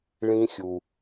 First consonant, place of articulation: retroflex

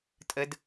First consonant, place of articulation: alveolar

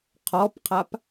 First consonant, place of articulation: uvular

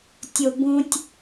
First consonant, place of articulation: alveolar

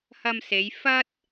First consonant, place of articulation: glottal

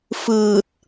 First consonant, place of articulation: labial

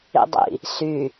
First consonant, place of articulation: alveolar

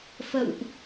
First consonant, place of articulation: labial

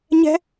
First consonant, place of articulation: palatal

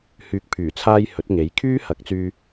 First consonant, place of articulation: glottal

